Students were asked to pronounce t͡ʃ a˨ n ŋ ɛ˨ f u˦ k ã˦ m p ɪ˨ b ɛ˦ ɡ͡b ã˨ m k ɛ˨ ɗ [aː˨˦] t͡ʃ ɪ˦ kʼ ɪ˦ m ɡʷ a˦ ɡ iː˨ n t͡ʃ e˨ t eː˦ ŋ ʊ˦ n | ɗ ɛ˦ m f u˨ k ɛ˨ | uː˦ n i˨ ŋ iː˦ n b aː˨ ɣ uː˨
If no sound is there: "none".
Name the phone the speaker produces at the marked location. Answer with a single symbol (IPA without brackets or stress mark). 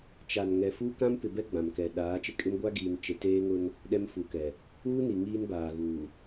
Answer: aː˨˦